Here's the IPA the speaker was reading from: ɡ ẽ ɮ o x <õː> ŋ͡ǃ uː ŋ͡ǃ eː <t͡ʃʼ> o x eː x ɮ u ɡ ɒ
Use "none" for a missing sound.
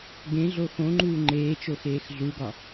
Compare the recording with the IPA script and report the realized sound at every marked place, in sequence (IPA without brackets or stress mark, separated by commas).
õ, t͡ʃ